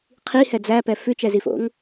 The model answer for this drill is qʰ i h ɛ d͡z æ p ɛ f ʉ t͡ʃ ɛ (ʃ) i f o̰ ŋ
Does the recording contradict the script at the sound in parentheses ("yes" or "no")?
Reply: yes